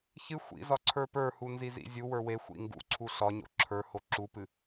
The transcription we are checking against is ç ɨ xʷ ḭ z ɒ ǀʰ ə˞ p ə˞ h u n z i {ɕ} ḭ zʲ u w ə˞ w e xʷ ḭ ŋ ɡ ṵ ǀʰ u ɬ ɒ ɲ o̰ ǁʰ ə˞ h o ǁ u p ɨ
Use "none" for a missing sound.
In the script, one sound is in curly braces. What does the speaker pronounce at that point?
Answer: z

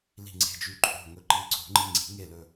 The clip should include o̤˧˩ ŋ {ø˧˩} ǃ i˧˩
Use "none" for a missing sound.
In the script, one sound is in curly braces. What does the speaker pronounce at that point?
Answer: ɵ˧˩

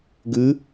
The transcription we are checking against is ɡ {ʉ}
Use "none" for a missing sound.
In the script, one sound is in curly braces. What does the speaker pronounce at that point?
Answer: ʉ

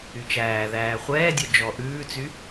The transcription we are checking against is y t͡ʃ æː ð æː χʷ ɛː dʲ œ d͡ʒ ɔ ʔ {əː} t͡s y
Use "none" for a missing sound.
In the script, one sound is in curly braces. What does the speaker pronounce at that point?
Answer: ʉː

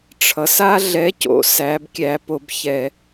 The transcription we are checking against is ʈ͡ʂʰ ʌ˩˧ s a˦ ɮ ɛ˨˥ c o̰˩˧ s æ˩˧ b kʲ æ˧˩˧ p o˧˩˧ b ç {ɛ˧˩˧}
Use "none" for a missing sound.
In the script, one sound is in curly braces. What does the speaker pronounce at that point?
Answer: ɛ˧˩˧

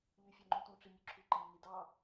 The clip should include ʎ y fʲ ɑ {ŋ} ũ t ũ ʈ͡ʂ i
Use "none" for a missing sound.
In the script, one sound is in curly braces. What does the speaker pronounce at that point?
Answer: ŋ͡ǃ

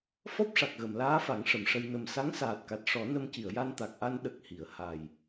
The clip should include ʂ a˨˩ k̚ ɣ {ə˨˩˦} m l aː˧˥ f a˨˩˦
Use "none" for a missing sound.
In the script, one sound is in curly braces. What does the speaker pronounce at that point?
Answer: ə˨˩˨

